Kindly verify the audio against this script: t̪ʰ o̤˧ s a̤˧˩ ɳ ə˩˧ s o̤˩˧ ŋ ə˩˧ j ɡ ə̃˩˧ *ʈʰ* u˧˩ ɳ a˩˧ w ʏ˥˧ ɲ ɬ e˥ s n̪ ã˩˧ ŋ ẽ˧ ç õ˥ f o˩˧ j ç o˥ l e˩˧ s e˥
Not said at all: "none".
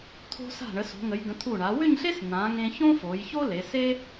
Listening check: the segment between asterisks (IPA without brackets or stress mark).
t̪ʰ